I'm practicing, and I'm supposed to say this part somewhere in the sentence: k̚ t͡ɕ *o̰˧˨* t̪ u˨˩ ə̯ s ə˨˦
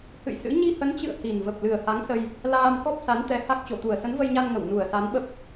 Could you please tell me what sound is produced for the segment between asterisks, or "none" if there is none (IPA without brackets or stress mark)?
o˧˩